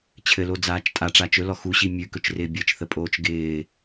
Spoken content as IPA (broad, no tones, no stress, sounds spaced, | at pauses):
t͡ɕʰ ɘ l o d͡z aː t͡ʃ tʼ a ʈ͡ʂ a t͡ʃ ɵ l ɔ x u ɕ i mʲ ʉ k ɵ t͡ʃ r ɪː bʲ ɘ t͡ʃ θ ə pʼ oː t͡ʃ ɡ ɪː